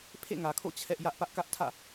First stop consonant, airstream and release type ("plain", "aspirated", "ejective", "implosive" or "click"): aspirated